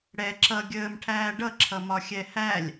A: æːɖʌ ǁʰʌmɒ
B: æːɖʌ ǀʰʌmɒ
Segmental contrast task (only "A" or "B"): A